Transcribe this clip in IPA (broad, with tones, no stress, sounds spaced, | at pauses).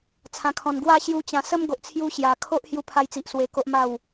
t͡sʰ ã˨˩ kʰ ɔ̃˨˩ n ɡ w a˥˧ ɕ j u˧ t͡ɕ ã˨˩ s ə˦ m ɡ o˨ ʔ t͡sʰ j u˧ ɕ j a˨˩ kʰ o˦ ʔ h j u˧ pʰ a˧ j t͡s i˨ ʔ s w e˧ k o˦ ʔ m a˥˧ w